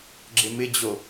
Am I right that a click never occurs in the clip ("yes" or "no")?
no